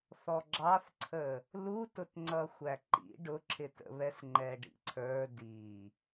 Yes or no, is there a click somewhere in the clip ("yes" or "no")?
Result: yes